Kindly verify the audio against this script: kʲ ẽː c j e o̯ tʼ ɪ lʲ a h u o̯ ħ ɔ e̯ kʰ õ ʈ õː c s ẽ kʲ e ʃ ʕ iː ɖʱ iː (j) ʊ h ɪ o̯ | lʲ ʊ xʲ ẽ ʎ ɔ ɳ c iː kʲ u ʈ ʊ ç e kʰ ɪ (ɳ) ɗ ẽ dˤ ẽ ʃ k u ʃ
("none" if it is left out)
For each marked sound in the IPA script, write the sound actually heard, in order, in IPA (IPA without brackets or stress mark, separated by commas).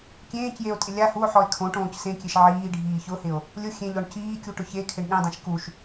ç, ɳ